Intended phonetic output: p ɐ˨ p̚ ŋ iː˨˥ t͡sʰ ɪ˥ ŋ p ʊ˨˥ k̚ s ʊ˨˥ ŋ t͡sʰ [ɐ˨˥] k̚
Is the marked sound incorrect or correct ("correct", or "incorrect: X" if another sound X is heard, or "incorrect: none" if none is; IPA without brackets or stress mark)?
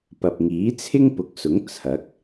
correct